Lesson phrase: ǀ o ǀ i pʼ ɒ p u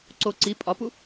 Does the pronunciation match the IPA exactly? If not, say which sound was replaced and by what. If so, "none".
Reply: none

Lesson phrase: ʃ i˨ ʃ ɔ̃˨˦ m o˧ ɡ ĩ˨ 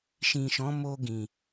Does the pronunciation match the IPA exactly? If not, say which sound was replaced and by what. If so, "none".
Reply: i˨ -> ĩ˨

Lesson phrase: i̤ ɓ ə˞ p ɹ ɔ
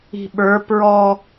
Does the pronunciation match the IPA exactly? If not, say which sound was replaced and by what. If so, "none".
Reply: none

